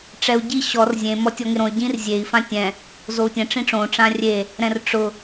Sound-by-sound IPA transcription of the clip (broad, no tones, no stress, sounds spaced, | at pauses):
ʈ͡ʂ ɛ u̯ ɟ i ɕ ɔ r zʲ ẽ m ɔ tʲ ɔ ŋ ɪ ɾ õ y̯ ɟ ĩ r zʲ e i̯ f ã tʲ ɛ̃ | z o u̯ tʲ ɛ̃ ʈ͡ʂ ĩ ʈ͡ʂ õ ʈ͡ʂ ã rʲ e | ɾ ɛ̃ r ʈ͡ʂ ʊ